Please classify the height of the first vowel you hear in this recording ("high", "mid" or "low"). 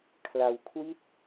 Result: low